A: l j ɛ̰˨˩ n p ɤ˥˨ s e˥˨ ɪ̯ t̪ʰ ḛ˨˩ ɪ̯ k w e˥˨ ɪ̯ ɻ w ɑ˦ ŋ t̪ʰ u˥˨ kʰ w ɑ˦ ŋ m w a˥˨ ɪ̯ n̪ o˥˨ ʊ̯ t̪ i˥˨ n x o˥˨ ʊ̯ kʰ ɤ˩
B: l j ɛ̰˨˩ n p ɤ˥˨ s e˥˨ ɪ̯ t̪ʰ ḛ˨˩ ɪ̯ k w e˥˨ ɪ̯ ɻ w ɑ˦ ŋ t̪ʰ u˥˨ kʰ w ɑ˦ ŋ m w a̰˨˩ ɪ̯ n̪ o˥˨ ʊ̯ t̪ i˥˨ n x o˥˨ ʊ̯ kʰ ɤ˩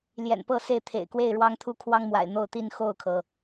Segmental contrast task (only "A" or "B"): B